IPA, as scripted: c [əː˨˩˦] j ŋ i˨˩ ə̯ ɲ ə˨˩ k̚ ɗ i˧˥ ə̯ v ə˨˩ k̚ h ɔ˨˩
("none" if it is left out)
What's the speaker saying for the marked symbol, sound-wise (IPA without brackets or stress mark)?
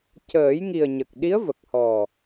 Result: əː˨˩˦